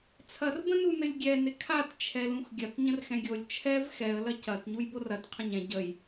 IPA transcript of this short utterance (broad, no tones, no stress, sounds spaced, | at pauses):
t͡sʰ ɐ r b ə̃ n u n ɘ lʲ ɡʲ ɛ n ɪ kʰ a t t͡ʃʰ ɛ l ũ x ɡʲ ɐ t ɲ ə̃ r x ɛ̃ ɡʲ o lʲ t͡ʃʰ ɛ v x ɛ ə̯ l ɐ c ɐ t ɲ u j b o r ɐ t qʰ ə̃ ɲ ɛ̃ ɟ ə j